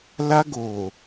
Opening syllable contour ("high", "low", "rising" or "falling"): high